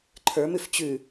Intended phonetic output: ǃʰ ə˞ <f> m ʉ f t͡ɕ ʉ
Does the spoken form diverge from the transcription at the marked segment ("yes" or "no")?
yes